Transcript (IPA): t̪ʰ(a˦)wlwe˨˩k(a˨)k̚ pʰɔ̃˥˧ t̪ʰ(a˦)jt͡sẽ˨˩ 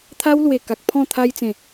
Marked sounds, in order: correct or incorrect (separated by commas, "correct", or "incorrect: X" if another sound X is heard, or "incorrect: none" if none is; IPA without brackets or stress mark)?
correct, correct, incorrect: a˧